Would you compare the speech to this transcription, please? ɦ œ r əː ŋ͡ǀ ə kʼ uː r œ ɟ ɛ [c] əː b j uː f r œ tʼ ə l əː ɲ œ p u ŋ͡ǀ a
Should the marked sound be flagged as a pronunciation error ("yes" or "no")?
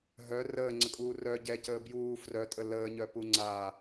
no